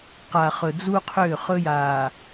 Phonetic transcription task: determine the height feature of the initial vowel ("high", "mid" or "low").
low